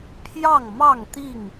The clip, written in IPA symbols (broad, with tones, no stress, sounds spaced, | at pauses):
pʰ j ɑ˥˨ ŋ m ɑ˥˨ ŋ t̪ i˥˨ ŋ